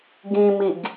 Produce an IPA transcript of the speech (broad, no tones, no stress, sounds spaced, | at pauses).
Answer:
ɡ ĩ m i ɡ